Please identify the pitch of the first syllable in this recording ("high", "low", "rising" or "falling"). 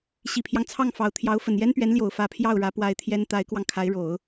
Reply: low